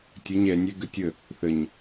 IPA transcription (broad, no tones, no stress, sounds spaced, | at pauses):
tʲ ə ɲ ɛ nʲ ɛ ɡ ə tʲ ə | θ ə ɲ